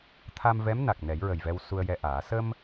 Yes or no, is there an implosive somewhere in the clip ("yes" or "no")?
no